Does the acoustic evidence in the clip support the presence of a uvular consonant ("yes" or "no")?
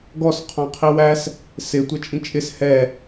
yes